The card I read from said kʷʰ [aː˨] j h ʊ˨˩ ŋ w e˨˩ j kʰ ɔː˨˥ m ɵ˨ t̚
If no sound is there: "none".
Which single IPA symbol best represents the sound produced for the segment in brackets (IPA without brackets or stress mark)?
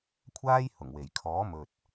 aː˥